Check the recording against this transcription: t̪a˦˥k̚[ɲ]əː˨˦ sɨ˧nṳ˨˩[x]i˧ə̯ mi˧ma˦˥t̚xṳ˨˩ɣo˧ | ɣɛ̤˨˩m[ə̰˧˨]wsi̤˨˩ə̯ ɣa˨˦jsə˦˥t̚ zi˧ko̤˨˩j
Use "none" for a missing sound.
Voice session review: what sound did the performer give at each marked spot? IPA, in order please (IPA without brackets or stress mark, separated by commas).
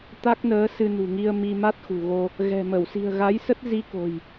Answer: n, ŋ, ə˧˩